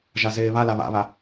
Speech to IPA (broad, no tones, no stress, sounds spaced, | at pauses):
ʒ a z eː β a l a β a̰ β a